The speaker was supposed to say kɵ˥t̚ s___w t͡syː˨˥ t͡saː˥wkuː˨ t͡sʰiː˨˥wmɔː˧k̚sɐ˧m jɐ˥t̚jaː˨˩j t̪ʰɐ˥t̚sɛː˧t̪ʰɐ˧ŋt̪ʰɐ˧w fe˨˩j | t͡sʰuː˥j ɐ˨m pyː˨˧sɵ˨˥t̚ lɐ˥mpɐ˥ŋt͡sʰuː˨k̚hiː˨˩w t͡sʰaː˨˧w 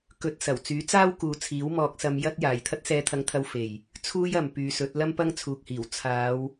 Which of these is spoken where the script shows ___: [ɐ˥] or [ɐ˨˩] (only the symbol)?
ɐ˨˩